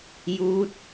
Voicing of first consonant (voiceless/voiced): voiced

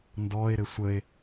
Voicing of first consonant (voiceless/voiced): voiced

